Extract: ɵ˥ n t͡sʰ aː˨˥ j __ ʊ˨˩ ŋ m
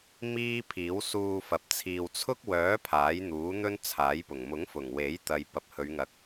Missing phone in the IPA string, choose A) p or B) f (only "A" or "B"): A